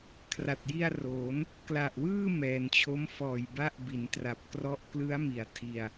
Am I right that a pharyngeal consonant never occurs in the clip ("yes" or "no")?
yes